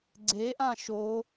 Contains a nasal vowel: yes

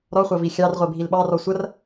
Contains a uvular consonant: yes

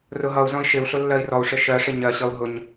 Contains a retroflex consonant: yes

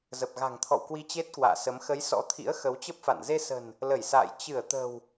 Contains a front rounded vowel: no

